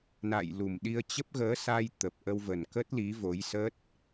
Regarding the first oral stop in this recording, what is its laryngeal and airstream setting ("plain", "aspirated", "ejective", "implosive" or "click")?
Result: implosive